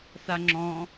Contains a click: yes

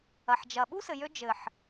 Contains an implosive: yes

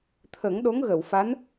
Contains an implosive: yes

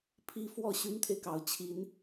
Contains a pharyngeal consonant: no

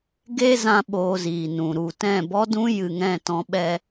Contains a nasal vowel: yes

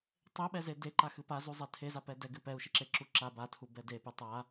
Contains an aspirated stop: yes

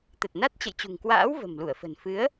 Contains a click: no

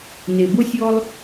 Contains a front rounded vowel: no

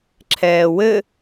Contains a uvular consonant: no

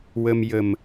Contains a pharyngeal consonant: no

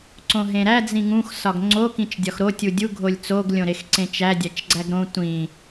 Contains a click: yes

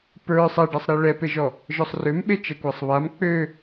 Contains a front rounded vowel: yes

